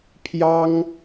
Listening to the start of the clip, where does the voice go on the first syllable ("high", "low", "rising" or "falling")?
high